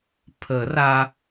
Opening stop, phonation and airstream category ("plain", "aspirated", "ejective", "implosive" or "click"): aspirated